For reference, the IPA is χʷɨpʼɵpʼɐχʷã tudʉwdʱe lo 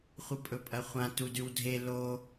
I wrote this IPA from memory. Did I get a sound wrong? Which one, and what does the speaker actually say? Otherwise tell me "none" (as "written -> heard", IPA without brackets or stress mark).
none